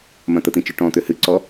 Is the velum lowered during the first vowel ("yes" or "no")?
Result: yes